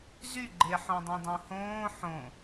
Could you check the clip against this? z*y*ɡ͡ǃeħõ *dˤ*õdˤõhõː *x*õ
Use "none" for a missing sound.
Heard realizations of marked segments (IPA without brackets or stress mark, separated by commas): y, dˤ, ħ